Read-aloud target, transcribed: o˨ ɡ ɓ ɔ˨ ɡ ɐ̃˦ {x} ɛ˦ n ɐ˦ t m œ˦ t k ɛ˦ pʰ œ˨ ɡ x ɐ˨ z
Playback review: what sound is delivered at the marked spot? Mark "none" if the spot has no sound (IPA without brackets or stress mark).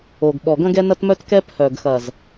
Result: ɡ